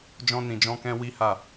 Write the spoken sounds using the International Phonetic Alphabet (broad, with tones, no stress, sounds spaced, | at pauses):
d͡ʒ ɔ̃˦ n ĩ˧ d͡ʒ ɔ̃˦ k ɛ̃˦ w i˦ h a˦˨